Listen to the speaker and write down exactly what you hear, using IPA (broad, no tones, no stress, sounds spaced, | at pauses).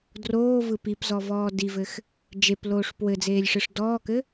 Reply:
d r oː v ɯ p i p z ɔ v ɔː d i v ɘ x | d͡ʒ e p l oː ʂ p w ɘ d͡z eː lʲ ʂ ɯ ʂ d ɔː k ɘ